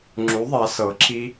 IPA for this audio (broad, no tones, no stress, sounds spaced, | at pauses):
ŋ͡ǁ u ðˤ a s ɤ ǁʰ i